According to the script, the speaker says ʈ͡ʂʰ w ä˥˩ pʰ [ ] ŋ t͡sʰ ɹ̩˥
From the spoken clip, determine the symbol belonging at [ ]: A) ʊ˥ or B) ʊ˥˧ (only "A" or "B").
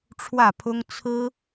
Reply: A